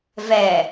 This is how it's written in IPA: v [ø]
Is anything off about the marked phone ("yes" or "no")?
yes